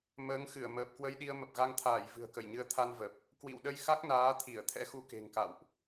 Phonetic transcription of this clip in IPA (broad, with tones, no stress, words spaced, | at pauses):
məː˨˦ŋxɨ˧˩ə̯ məː˨˩p̚ kwə˧jɗi˧ə̯ mə˨˩p̚ɣa˧ŋt̪ʰaː˧˩j vɨ̤˨˩ə̯kə˧˩jɲɨ˧ə̯ t̪ʰa˧nvə˨˩p̚ | kwḭ˧˨wɗə˧j xa˦˥k̚naː˨˦t̪ʰi˧˩ə̯ t̪ʰɛ̰˧˥xu˧ ke̤˨˩ŋka̰˧˨wʔ